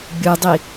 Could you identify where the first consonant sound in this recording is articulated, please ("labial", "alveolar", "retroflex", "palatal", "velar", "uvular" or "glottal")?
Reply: labial